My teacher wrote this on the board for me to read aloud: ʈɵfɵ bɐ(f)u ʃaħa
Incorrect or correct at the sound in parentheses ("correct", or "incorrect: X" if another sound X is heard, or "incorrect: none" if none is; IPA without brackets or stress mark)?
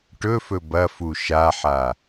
correct